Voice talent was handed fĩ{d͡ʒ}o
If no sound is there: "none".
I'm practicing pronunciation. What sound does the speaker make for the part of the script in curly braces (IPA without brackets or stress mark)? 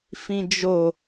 d͡ʒ